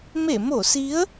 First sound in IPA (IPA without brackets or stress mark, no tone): m